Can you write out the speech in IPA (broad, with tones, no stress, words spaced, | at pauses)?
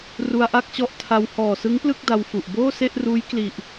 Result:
ru˧a̯ʔa˥˩k̚t͡ɕɔ˦˥ʔtʰa˧w hɔː˨˩sɯ˦˥ŋplɯ˥˩k̚ da˧wfu˨˩ʔ boː˥˩se˥˩ʔruː˦˥j kli˨˩ʔ